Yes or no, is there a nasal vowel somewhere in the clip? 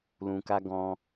yes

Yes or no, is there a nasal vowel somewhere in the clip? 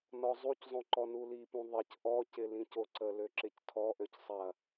yes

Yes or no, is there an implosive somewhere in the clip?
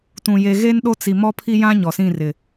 yes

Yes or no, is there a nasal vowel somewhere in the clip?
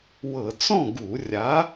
yes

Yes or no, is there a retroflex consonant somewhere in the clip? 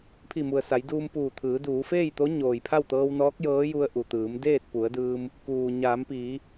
no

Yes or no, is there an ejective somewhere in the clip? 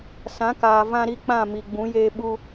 no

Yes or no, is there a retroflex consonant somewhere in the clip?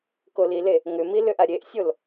no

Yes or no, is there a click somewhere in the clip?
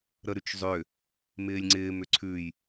yes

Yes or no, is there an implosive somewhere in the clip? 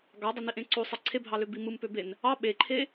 yes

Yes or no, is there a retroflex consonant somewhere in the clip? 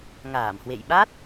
no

